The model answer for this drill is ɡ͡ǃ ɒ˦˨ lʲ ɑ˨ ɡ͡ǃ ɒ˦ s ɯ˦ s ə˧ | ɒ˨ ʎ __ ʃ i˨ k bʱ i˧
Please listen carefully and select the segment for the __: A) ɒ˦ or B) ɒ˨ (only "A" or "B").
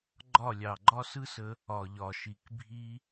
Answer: B